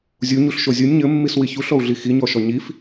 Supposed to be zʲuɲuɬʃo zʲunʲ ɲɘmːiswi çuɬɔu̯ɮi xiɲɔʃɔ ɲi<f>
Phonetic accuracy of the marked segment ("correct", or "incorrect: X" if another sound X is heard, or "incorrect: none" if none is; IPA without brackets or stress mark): correct